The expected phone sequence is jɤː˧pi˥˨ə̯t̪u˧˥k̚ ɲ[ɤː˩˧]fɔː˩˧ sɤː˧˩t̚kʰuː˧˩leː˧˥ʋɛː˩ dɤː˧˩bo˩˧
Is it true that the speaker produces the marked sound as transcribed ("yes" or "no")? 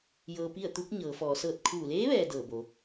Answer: yes